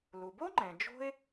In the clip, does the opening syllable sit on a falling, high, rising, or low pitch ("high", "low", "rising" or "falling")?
low